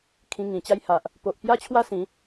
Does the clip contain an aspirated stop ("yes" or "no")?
yes